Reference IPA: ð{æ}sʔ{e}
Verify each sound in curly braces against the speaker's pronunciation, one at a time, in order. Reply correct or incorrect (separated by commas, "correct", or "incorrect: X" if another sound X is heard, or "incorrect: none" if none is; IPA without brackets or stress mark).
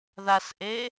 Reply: incorrect: a, correct